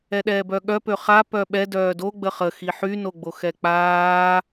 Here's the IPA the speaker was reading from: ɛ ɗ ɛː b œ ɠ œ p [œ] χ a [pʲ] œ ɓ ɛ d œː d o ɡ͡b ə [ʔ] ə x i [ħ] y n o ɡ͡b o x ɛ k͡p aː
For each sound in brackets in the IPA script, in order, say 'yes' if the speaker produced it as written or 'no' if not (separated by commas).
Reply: no, no, no, yes